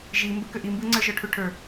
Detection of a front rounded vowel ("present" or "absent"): present